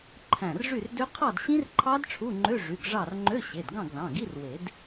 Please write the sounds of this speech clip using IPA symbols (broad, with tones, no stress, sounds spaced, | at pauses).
ǃʰ æ̃˧˩ r ʐ y˥˨ r d ø˦˥ qʰ ɑ˥˨ d ɕ ĩ˦˥ r ǃʰ ɑ˦˥ d ʈ͡ʂʰ u˧˥˧ ŋ͡ǃ ø˧˥˧ ʐ y˩˧˩ ɡ ʐ ɑ˥˨ r ŋ͡ǃ ø˧˥˧ ɕ e˩˧˩ d ɡ ɑ̃˥˨ ɡ ð ɑ̃˩˧˩ ɡ i˧˥˧ r w e˨˩˦ d